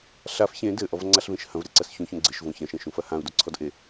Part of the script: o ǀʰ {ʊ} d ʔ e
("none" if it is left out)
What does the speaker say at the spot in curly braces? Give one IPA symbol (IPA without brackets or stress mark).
ɔ